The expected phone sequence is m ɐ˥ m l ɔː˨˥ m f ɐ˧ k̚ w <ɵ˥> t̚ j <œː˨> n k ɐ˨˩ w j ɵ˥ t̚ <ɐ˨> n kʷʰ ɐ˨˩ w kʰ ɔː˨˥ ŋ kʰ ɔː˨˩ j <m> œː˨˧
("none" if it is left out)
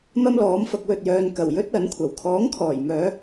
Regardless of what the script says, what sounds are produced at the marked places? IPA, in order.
ɵ˨, œː˨, ɐ˨˥, m

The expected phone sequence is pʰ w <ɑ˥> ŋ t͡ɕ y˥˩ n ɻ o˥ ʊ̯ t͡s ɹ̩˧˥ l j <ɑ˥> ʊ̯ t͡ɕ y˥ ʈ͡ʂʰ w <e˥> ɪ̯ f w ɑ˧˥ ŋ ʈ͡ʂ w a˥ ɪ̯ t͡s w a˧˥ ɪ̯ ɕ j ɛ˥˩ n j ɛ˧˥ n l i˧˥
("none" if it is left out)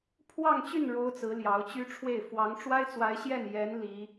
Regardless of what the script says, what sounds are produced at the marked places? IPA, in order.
ɑ˥˧, ɑ˧˥, e˥˩

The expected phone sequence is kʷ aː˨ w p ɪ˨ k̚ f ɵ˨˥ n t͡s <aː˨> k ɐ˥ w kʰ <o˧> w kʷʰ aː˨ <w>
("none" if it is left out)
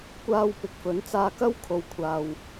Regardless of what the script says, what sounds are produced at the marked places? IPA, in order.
aː˧, o˨, w

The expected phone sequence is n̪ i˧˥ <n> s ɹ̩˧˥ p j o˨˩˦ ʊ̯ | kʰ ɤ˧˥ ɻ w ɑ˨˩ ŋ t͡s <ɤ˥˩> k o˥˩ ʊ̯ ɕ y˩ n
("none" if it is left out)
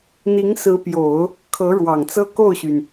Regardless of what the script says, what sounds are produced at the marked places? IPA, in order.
ŋ, ɤ˥

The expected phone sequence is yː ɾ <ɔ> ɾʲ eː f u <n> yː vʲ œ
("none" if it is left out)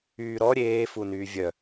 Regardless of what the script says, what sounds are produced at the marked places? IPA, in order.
ɔ, n

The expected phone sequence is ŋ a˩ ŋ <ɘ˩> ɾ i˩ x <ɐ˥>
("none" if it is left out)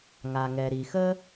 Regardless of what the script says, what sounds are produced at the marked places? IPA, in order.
ɛ˩, ə˥

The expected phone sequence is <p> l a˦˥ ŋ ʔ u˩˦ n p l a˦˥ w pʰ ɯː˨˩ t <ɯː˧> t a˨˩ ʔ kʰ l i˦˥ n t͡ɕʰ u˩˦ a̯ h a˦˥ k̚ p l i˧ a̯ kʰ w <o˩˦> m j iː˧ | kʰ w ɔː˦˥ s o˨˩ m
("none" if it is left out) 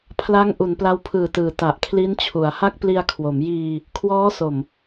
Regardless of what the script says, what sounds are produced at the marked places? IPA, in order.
pʰ, ɯː˩˦, o˩˦

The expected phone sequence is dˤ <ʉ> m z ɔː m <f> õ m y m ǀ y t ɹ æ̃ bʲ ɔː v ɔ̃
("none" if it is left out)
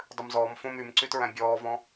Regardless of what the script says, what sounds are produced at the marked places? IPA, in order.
ʉ, f

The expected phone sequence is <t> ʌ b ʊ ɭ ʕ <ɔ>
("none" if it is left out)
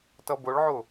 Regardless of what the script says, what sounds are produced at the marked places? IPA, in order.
t, ʊ

